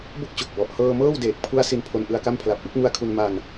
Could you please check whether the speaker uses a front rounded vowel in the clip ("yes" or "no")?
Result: no